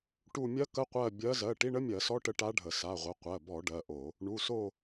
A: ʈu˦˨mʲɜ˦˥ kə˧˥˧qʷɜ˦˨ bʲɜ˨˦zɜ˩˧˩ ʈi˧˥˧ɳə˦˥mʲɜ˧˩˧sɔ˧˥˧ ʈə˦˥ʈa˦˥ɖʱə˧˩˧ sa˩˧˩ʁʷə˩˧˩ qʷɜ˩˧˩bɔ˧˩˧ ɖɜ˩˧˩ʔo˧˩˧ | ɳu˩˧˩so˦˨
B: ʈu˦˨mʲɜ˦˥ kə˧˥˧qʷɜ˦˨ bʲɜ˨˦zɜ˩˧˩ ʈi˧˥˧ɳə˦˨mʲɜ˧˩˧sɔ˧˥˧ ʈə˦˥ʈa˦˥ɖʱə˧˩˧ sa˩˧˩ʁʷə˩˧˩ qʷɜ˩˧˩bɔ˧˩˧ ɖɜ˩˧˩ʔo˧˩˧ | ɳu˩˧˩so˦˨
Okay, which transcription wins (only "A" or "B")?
A